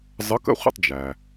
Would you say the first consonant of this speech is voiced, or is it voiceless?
voiced